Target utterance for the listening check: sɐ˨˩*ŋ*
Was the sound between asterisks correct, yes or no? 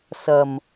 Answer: no